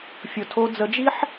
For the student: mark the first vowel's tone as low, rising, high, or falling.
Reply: low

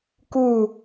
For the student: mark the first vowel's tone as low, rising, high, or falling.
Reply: falling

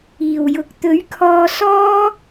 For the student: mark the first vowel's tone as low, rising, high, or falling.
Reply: low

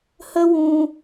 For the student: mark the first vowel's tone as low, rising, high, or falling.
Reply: high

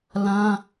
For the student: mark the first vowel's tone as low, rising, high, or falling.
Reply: high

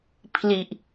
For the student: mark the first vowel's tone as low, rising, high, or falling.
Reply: low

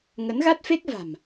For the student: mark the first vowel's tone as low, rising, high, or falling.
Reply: rising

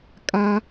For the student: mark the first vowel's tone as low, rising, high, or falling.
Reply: low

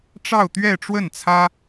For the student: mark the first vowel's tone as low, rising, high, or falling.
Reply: falling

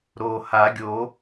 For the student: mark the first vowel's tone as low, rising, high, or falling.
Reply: low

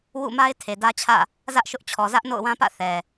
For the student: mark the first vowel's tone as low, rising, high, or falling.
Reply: falling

